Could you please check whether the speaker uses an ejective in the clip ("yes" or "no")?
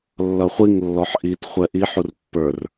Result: no